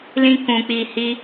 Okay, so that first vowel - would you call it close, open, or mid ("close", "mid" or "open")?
close